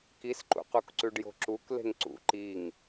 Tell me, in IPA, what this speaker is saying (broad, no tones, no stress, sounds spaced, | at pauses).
k i s ǃ ṵ q u k ǀ ʉ ɖ j o̤ ǁ u k l e̤ ŋ ǀ ṵ ǃ i ŋ